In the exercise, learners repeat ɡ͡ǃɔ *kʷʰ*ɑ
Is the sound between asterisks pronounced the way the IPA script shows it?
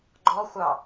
no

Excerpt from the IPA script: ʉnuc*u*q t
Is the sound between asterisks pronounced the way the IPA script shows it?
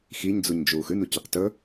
no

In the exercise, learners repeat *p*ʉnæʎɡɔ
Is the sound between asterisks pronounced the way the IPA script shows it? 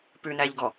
yes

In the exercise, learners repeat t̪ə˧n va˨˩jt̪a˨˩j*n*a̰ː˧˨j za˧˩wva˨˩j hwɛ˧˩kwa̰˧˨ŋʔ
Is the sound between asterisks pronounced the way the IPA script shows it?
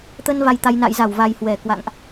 yes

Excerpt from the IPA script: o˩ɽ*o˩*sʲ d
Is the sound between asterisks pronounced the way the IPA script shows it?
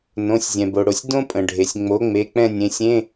yes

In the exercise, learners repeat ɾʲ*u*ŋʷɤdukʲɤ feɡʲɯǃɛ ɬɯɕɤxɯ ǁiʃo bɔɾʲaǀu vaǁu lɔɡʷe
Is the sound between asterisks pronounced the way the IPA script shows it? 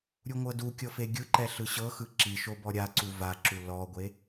yes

